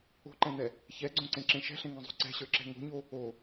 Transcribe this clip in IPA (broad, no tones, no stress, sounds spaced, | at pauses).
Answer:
o̤ ǃ ɛ̃ n̪ ɛ | ç ɛ ɡ͡ǀ õ ǀ ẽ ǁ ẽ ʃ ɛ̤ ɬ ẽ ŋ ẽ zˤ o̤ ǀ ɛ̤ ɕ ə˞ ǁ ɛ̤ ŋ o̤ ɲ o | o